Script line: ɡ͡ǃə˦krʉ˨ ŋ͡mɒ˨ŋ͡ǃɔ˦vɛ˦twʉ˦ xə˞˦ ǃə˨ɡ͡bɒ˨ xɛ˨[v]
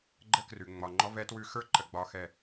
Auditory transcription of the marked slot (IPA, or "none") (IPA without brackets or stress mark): none